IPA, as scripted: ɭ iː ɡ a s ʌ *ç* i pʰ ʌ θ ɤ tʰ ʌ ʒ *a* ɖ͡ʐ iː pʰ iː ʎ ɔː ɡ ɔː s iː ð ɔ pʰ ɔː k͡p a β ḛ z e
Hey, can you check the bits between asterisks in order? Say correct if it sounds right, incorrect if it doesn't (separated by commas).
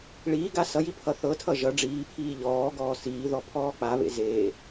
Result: incorrect, incorrect